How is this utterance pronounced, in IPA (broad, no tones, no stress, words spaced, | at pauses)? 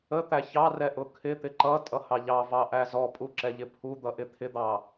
ət̪æ çɑrɛ ʔʊkʰɪt̪ɪ ǃʌ tʼʌhɑʎɑvɑ ʔæzɔpʼu ǁɛʎɪpʰud̪ʌ ʔɪt̪ʰɪd̪ɑ